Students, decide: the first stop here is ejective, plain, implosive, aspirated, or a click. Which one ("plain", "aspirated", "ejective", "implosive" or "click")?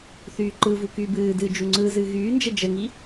click